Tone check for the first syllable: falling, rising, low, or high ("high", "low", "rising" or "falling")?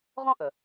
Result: high